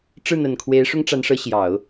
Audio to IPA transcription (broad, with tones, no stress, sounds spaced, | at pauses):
ʈ͡ʂ ɻ̩˥˩ n̪ ə˨˩ n kʰ w e˧˥ ɪ̯ ʂ ʊ˥ ŋ ʈ͡ʂ a˧˥ n ʂ ɤ˧˥ ɕ j ɑ˨˩˦ ʊ̯